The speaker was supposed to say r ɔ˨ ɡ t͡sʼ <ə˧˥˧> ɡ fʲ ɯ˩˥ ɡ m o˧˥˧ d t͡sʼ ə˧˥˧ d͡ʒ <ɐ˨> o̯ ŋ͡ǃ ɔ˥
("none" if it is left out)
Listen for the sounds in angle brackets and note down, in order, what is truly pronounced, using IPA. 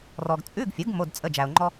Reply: ʉ˧˥˧, æ˨

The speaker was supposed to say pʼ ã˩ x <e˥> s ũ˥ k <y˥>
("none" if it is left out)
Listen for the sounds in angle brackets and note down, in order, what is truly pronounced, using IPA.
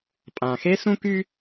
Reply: e˥, y˥

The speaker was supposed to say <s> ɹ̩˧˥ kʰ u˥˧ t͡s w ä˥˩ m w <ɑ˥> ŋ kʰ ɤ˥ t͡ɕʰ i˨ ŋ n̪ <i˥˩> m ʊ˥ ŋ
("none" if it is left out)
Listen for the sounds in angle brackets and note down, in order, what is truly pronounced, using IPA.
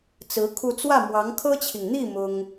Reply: t͡s, ɑ˧˥, i˥˩

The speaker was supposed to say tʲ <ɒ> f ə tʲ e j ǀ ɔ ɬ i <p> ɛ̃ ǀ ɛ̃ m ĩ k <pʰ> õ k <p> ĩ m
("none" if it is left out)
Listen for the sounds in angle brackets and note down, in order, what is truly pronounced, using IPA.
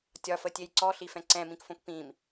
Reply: ɒ, f, f, p

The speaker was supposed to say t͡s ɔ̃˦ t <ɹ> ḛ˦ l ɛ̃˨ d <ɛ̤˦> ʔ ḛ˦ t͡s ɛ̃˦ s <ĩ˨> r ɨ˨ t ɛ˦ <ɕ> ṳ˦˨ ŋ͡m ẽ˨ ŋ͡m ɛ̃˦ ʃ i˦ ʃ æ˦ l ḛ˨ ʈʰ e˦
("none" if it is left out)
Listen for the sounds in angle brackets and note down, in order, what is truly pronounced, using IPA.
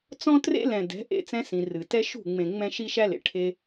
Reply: r, ɛ̤˨˦, ĩ˨, ʃ

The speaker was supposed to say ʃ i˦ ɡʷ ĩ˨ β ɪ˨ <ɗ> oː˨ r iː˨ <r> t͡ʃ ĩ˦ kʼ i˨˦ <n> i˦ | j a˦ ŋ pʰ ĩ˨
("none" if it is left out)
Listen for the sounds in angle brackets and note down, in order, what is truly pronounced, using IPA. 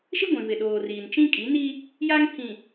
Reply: ɗ, n, n

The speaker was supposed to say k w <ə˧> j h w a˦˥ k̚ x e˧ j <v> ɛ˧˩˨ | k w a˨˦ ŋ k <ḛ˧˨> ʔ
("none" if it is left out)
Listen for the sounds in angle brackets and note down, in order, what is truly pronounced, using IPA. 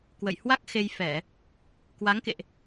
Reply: ə̰˧˨, f, ḛ˧˨

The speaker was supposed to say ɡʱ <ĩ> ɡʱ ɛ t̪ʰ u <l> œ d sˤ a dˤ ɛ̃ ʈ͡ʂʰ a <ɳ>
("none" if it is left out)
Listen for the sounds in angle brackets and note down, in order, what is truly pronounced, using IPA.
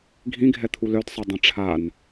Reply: ĩ, l, n

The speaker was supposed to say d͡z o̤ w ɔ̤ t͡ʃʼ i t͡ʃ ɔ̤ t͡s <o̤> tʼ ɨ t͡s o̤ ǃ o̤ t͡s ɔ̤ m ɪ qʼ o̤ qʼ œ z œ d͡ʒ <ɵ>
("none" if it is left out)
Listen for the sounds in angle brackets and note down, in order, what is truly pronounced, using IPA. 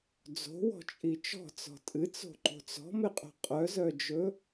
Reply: ɔ̤, ɵ

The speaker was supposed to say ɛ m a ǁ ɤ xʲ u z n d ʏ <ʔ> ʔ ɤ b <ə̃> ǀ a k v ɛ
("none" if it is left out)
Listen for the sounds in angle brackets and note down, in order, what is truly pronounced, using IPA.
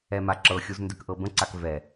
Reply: k, ə̃

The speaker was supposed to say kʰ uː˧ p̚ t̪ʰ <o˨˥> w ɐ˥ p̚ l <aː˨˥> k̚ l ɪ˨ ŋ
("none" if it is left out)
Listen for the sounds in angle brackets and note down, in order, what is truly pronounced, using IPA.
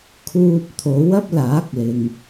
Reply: o˨˥, aː˨˥

